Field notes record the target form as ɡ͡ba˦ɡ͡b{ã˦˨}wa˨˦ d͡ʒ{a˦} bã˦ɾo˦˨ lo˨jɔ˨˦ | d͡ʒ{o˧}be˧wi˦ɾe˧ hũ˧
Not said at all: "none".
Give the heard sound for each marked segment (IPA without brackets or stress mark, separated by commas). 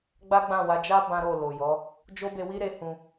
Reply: ã˦˨, a˦, o˦